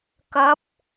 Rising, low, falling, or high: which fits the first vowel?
rising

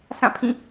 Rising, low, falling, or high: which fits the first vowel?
falling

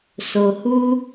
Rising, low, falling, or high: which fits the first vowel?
low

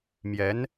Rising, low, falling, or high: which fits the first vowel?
rising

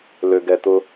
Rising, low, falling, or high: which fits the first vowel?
low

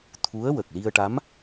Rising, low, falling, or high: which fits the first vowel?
rising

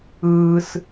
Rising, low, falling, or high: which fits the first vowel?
high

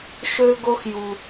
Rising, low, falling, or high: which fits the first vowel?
high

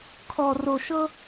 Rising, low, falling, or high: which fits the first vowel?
low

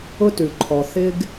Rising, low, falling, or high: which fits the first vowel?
high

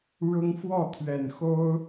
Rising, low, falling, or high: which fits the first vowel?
high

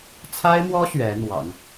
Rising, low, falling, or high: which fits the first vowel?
high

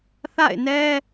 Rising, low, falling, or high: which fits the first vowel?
falling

